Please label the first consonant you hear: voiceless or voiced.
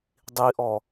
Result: voiced